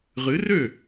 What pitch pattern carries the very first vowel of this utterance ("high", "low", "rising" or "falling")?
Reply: rising